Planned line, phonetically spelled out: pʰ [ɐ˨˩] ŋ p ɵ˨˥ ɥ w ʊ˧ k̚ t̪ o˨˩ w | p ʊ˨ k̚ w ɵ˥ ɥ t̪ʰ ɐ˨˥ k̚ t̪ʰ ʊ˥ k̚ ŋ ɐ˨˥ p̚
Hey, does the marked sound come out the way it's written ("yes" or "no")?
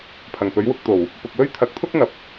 yes